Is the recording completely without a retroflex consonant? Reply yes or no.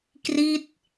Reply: yes